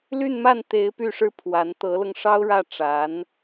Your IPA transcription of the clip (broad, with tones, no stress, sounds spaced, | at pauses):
l y˥˧ n m a˥˩ n t̪ e˧˥ ɪ̯ p y˥˩ ʂ ɻ̩˥ pʰ w a˧˥ n t̪ ɤ˧˥ l ɤ˧ ŋ ʂ ɑ˥ ʊ̯ ɻ ä˥˩ ʈ͡ʂ a˧˥ n